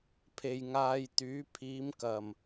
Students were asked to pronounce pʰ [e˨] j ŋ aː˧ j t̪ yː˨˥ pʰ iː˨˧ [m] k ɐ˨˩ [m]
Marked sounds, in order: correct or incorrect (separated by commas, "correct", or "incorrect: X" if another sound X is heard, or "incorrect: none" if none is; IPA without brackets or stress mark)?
correct, correct, correct